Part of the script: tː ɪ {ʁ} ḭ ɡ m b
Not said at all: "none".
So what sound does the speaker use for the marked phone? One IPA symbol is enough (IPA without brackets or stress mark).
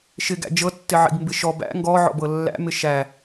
ʕ